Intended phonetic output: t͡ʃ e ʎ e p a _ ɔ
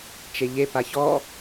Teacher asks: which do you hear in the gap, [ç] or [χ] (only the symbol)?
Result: ç